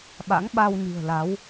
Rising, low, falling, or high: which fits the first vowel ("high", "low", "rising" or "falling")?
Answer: rising